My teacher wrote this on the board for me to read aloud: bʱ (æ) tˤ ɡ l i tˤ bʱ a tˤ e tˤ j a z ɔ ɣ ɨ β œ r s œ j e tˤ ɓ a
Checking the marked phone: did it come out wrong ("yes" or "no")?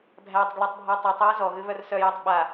no